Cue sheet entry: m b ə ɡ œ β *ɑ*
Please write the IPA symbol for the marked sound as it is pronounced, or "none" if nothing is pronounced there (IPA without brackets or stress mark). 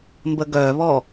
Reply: ɔ